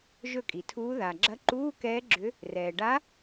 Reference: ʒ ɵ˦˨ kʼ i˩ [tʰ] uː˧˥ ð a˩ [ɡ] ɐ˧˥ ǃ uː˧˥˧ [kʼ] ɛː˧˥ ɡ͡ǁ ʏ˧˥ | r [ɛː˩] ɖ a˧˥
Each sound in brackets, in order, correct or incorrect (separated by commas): correct, incorrect, incorrect, correct